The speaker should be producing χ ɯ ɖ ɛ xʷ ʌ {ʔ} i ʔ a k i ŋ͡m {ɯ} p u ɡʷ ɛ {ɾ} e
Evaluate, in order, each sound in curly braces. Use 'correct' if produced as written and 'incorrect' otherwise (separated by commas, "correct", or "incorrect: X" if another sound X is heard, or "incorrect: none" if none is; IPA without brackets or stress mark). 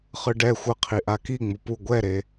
incorrect: qʰ, incorrect: u, correct